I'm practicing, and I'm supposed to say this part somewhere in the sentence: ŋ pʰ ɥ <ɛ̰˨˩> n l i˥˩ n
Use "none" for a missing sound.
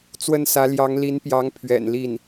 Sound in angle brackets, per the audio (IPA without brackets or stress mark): ɛ̰˨˩